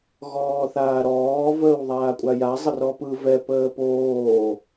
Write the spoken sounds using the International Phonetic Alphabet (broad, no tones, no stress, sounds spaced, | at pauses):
ɣ ɔː θ aː ɾ ɔː v əː w ðˤ aː kʷʼ a j a zˤ ə r ɔ p ɯ v ɛ p əː p oː